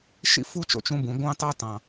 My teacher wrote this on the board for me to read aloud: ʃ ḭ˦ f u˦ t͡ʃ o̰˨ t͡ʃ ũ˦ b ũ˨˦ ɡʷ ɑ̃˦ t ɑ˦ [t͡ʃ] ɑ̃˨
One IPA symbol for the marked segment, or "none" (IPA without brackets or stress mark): t